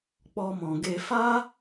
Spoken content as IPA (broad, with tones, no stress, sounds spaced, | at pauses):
k͡p ɔ˧ m ɔ̃˨ ɡ e˧ f a˦